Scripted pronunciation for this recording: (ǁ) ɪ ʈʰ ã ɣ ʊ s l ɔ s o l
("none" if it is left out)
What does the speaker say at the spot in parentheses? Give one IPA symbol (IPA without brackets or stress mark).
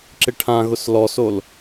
ǁ